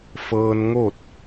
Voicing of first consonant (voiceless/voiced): voiceless